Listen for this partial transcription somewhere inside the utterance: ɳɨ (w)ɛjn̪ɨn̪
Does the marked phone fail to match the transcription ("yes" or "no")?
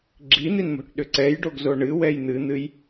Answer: no